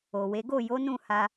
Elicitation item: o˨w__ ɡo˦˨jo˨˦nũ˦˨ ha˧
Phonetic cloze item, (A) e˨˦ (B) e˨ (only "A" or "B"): A